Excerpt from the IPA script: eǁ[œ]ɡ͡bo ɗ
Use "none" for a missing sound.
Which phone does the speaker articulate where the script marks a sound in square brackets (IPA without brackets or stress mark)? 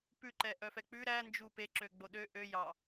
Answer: ø